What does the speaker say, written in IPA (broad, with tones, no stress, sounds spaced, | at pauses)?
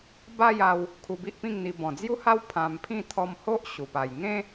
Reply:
b a˥˧ j a˧ w | kʰ u˧ b i˦ ʔ p ĩ˥˧ ŋ n̪ i˧ b ɔ̃˨˩ d͡z j u˦ h a˦ w pʰ ã˧ m pʰ ĩ˥˧ t̪ʰ ɔ˧ m h o˦ ʔ ɕ u˨˩ p a˨˩ j ŋ ẽ˦